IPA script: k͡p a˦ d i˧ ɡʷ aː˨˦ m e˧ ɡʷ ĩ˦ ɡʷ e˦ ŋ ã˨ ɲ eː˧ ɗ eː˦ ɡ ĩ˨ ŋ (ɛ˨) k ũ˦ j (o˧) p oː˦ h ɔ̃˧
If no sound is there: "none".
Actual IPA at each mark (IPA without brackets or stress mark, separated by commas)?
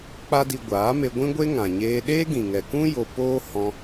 ɛ˨, o˧